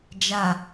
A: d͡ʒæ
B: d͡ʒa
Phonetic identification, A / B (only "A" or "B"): B